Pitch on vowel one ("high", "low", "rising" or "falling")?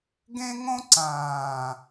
high